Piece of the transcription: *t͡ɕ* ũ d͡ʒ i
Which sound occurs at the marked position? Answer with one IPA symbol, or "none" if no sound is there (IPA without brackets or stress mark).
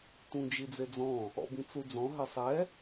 t